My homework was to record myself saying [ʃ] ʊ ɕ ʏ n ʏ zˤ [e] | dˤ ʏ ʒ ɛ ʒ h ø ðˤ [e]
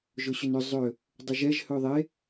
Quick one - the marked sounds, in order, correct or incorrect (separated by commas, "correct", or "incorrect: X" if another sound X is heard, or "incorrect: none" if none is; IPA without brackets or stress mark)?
incorrect: ʒ, incorrect: ø, correct